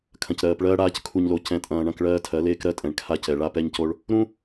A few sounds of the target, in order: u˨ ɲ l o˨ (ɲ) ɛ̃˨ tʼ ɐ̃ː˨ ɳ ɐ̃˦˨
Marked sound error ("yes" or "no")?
yes